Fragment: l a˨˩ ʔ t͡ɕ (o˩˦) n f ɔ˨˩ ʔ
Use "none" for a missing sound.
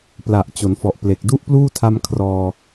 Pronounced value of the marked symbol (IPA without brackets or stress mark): o˩˦